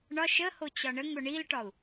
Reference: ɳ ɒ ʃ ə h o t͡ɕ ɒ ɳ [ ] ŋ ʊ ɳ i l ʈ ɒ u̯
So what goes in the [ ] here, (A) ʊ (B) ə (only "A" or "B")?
B